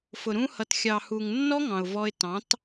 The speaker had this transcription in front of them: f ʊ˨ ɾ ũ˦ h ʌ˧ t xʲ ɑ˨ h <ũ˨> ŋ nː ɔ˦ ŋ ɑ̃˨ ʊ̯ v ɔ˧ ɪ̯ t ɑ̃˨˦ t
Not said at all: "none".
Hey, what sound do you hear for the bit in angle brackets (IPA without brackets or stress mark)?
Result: u˨